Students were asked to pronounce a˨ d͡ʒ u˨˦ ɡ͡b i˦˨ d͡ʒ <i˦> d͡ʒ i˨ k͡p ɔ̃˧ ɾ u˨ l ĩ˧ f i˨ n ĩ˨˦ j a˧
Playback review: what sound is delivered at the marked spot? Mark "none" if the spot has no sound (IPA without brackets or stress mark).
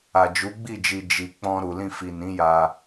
i˨